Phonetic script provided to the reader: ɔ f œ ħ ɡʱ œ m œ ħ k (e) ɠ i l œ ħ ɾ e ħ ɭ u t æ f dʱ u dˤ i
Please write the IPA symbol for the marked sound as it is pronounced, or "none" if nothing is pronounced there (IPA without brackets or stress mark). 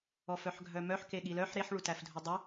e